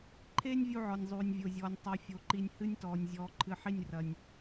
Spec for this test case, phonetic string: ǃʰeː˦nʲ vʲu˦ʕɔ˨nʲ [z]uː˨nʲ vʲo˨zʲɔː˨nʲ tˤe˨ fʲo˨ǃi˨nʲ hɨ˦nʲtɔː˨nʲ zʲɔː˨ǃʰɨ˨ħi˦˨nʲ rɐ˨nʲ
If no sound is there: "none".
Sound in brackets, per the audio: zˤ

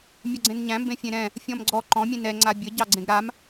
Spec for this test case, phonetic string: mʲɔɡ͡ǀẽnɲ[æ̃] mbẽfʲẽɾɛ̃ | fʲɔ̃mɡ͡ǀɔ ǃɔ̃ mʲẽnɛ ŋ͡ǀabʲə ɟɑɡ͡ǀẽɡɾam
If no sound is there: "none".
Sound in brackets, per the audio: æ̃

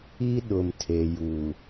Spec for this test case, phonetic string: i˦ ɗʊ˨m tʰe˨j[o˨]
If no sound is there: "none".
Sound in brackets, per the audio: u˨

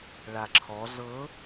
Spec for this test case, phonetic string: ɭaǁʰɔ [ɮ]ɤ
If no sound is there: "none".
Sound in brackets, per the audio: ɮ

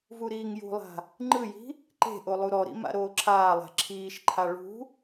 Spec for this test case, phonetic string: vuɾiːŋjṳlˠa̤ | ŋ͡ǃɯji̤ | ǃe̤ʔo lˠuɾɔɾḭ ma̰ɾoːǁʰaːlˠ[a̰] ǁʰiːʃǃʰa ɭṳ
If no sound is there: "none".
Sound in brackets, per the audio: a̤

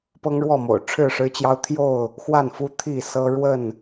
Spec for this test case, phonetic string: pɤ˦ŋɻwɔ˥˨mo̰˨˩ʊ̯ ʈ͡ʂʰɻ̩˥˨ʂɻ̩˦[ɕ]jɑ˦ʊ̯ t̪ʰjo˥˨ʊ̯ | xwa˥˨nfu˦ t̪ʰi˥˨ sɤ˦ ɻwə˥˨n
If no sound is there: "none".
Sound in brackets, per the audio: t͡ɕ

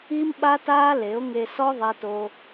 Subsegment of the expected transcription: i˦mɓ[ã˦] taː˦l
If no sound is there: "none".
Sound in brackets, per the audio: a˦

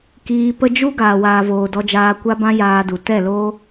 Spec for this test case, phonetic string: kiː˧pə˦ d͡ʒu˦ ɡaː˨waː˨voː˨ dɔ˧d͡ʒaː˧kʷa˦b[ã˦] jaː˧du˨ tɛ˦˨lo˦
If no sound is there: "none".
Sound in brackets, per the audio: ã˦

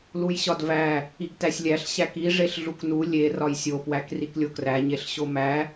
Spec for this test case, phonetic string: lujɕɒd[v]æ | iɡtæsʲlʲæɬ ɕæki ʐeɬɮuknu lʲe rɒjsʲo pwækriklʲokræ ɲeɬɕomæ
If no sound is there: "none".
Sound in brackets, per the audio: v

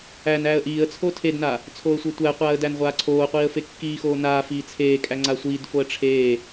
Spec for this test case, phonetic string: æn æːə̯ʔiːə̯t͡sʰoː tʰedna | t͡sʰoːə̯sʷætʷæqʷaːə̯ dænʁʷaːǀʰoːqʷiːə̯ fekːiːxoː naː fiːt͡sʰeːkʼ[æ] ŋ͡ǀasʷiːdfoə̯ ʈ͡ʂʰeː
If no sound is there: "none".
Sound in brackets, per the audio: æ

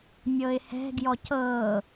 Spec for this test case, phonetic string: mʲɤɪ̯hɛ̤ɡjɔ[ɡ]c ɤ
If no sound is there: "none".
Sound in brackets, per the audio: none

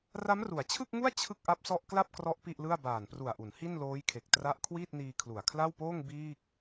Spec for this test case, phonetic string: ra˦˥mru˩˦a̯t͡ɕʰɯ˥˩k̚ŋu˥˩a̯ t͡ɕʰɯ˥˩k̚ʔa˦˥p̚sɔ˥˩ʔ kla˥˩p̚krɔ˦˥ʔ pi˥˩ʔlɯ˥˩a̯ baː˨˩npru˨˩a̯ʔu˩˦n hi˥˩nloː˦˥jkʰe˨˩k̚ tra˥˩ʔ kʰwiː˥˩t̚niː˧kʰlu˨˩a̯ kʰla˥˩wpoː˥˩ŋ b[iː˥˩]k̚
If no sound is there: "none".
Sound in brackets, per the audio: iː˥˩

